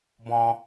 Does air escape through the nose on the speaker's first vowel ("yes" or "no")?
yes